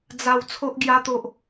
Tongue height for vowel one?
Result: low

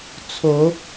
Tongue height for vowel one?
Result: mid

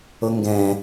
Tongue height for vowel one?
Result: mid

